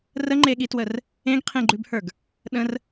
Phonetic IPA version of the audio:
r ə ŋ͡ǃ e ɠ i t w ə r | ẽ ɡ qʰ ẽ ɡ͡ǃ ʉ b h ə˞ ɡ | ɗ ə̃ r

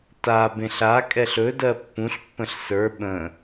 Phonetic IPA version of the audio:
t a b ẽ ɬ a kʼ ɛ ɬ ɵ d ɜ pː ũ ɬ pː ə̃ ɬ s ə˞ ɓ ə̃

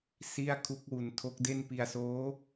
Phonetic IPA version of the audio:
s i˥˩ a̯ kʰ u˦˥ k̚ w u˧ n tʰ o˦˥ k̚ d e˥˩ n p i˧ a̯ s oː˦˥

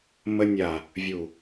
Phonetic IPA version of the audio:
m ə˧ nʲ a˨ | vʲ u˨

